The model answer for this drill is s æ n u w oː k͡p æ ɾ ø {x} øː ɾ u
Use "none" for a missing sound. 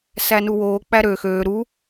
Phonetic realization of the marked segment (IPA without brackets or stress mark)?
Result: x